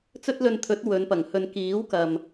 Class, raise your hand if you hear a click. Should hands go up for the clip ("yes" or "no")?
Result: no